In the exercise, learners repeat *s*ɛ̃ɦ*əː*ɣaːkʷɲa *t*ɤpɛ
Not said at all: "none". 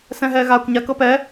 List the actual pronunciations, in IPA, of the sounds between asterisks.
s, ɛː, k

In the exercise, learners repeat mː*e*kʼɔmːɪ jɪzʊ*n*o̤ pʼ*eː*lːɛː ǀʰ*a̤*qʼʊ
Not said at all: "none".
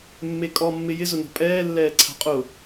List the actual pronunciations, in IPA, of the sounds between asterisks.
e, n, ɛː, a̤

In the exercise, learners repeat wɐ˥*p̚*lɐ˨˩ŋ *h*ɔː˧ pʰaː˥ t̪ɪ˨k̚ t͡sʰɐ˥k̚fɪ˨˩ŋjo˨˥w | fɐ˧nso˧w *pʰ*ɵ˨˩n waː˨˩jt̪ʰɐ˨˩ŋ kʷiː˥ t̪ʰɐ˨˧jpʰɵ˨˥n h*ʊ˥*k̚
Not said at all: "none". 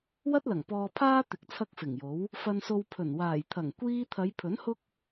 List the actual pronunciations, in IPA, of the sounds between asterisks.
t̚, p, pʰ, ʊ˥

